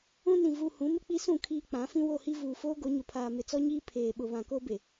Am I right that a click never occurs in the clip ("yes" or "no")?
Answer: yes